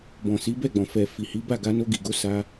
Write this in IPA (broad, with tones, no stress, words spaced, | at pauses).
bɔ̃˨si˨˦bɛ˦˨ɡ͡bɔ̃˨ fɛ˨ fi˨hi˨˦ba˦˨ɡa˧ no˧ɡi˨ɡo˨˦ sa˧